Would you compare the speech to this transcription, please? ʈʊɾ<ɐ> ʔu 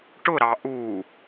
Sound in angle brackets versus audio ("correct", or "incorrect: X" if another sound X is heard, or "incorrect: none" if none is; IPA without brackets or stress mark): incorrect: ɑ